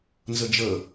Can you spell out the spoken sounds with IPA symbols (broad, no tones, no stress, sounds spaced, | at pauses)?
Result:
n z ʌ d͡ʒ ʌ